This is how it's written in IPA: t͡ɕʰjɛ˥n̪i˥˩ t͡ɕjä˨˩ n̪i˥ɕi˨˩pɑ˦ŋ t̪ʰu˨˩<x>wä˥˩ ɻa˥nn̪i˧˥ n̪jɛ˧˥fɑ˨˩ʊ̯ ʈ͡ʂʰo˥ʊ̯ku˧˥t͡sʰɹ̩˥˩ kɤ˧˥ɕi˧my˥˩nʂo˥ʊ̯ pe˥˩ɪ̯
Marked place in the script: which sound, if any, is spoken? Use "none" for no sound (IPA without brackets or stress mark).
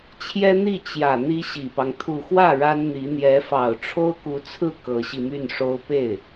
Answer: x